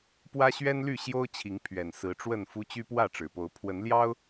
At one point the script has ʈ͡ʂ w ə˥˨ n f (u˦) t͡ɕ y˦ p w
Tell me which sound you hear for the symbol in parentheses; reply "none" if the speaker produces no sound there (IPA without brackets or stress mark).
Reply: u˦